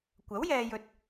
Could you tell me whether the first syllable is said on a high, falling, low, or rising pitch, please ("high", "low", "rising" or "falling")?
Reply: rising